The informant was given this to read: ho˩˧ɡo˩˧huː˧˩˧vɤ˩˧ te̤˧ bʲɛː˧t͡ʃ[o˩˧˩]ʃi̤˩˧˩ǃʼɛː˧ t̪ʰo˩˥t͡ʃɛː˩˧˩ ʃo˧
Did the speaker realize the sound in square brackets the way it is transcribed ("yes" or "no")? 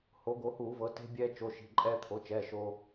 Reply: yes